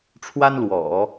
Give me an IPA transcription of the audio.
ʈ͡ʂʰ w a˥ n l w ɔ̰˨˩˦

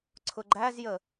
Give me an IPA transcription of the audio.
ǀʰ ʊ ɡ͡ǃ æ z j ə

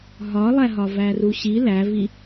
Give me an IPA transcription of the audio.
ɦ ɒ lˠ æ ɦ ɒ v æ r u ɕ i l æ v i

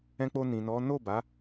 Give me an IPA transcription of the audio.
ɛ̃˧ k͡p o˧ n ĩ˨ n ɔ˨˦ n o˦˨ b a˨˦

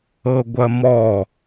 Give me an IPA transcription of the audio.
ɤ ɡʷ ɐ m ɔ

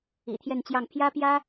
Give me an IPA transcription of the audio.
ḭ˨˩ t̪ʰ j ɛ˥˧ n t͡ɕ j ɑ˥˩ ŋ pʰ j ä˥ p j ä˥

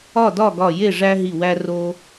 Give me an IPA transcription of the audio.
ɒ˥˨ d ɒ˥˨ ɡ ɒ˧˩ j e˥˨ ʐ æ˦ ɦ i˧˩ w æ˦ r o˦

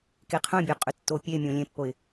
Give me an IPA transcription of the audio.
k e qʰ œ̃ bʲ œ qʼ ʏ tː o pʲ e mʲ õ lʲ ẽ pː o ɪ̯

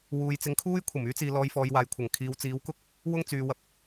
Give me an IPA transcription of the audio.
w uː˨˧ j t͡s ɪ˨˥ ŋ kʰ uː˥ j kʷʰ ɐ˨˩ m yː˥ t͡s iː˨ l ɔː˧ j f ɔː˨˧ j w aː˨ j kʷʰ ɐ˨˩ ŋ kʰ iː˨˧ w t͡s iː˨˥ w k ʊ˥ k̚ | w ʊ˥ ŋ t͡s yː˨˧ w ɐ˨ p̚

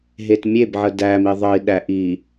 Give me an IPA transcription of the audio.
ɦ e t mʲ e b ʕ ə d æ m i ðˤ ə i̯ ɗ æ ʔ i

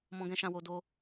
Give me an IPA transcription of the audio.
m ɔ̃˧ ɡ ɛ̃˧ ʃ ã˧ w o˧ d o˧

